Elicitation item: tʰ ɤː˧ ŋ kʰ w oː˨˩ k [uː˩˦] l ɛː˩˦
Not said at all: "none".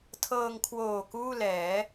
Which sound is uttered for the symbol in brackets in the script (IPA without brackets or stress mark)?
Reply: uː˥˩